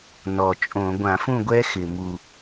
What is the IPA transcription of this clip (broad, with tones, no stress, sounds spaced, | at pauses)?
n ɔ˨˩ t͡ʃʼ õ˧˩˧ ɡʷ ã˧˩˧ f ũ˥˨ ɡʷ ɛ˦˥ x ɪ˨˩ m u˨˩